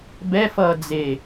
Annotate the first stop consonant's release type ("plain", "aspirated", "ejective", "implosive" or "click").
plain